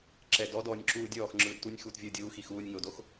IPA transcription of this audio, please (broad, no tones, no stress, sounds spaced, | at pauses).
ǁ ɛ d ɔ d ɔː nʲ ǁ uː dʲ ɔː x ŋ͡ǁ ɯː d t u nʲ x uː t vʲ ɯː dʲ uː x i x uː nʲ ŋ o d o x